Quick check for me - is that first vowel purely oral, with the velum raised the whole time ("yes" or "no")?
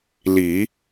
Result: yes